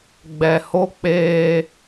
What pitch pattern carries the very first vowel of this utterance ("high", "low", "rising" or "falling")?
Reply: low